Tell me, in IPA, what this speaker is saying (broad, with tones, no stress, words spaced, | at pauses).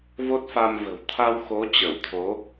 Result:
vo˦˥t̚fa˧mvə̤˨˩w t̪ʰa˧wxo˨˦ t͡ɕə˧˩wt̪ʰo˨˦